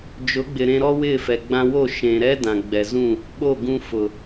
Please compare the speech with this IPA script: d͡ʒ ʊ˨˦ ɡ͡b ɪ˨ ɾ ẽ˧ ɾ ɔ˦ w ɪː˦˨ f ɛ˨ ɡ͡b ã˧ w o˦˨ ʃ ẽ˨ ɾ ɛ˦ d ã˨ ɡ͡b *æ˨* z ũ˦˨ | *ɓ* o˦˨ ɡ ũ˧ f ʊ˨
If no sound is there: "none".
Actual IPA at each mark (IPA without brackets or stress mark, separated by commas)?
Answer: ɛ˨, ɓ